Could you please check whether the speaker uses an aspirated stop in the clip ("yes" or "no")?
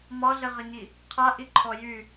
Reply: yes